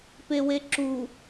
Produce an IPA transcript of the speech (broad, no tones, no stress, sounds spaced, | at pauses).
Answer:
p e w e ǁ u